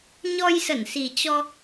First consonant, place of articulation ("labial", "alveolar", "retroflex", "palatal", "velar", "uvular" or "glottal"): palatal